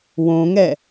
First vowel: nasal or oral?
nasal